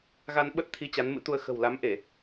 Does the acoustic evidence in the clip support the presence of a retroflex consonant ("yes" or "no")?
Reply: no